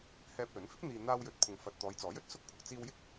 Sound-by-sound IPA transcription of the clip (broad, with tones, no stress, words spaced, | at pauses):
hɛː˧p̚lɵ˨˥n fɪ˥k̚n̪iː˨ n̪aː˧wjɵ˨t̚ pʰʊ˨ŋfɐ˨t̚ t̪ɔː˨˧jt͡sɔː˨˥jɵ˨˥t̚ sʊ˥k̚pʰʊ˨k̚ t͡siː˧wjɪ˥k̚